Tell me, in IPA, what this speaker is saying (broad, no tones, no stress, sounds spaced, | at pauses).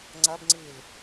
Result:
ŋ͡ǀ ɐ b ŋ͡ǀ i l